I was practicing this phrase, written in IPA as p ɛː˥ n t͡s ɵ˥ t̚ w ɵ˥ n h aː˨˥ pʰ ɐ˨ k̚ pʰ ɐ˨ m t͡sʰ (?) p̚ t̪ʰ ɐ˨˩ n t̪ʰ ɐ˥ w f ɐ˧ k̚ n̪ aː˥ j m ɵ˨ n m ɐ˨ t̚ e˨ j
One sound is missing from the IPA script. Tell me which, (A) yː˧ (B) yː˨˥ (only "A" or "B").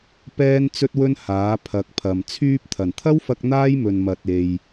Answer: A